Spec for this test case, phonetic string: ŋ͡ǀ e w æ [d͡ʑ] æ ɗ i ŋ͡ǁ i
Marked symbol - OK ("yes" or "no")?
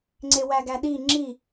no